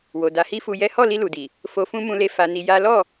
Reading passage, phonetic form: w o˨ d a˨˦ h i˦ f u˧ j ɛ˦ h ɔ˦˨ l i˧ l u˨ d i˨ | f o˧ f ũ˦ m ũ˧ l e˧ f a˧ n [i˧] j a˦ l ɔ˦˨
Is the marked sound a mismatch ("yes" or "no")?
no